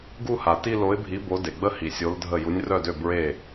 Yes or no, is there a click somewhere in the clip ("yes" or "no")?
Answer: no